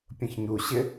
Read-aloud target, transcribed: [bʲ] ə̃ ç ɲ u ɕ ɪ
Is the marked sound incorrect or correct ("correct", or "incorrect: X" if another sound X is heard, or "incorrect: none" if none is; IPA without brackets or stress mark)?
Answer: incorrect: pʲ